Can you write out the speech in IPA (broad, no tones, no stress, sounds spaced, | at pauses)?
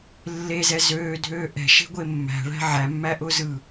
lː e z ɛ z øː dʱ øː ʔ ɛ̤ ʃ e̤ ɡʷ e mː æ̤ ɭ æ̤ ʕ æ mː æ ʔ ʊː z ɯ